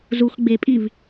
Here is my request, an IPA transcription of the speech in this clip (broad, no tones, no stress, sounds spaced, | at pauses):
z u x ɡ͡b e pʼ i v